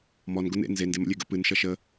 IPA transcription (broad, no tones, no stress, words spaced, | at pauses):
mɔn ɡʊn ḛ nze ndemə̰lʲeɡə̰ pɨn ʃʌʃə